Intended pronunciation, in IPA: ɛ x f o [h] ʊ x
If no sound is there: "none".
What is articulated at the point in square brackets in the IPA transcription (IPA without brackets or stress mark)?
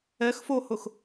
h